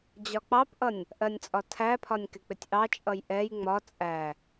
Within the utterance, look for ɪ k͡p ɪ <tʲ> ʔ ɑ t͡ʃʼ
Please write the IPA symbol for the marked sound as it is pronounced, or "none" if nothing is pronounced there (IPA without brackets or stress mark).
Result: tʲ